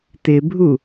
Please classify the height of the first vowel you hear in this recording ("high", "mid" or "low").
high